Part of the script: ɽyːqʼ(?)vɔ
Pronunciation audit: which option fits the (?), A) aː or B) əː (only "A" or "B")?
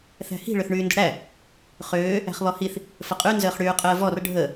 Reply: B